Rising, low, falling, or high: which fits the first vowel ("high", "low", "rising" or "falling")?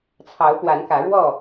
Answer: rising